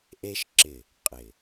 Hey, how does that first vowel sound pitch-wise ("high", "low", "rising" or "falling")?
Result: high